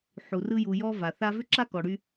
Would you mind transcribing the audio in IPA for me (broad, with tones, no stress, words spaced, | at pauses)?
ħu˩rɯ˧ ju˩jɔ˧ va˩θa˥ vʏ˥ǁa˥kɔ˩ ɽy˧